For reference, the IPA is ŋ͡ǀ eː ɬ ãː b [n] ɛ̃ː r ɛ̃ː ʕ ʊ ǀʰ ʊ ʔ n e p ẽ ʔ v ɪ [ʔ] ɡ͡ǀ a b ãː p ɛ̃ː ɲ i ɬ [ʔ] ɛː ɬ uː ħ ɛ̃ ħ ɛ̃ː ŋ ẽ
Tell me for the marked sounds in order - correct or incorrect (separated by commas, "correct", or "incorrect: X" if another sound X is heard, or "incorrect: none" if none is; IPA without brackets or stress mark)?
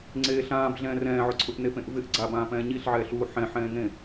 incorrect: ɮ, correct, incorrect: ʕ